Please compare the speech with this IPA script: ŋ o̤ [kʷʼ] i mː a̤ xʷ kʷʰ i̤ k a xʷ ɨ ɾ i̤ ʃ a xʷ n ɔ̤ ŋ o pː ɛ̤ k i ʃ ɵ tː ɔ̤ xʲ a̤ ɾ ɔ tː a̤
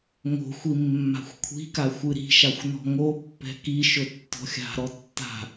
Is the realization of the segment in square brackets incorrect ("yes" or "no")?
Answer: yes